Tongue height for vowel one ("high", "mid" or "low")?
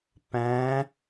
low